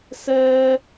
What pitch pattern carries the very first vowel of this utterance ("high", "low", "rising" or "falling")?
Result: high